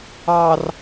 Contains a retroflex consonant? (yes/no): no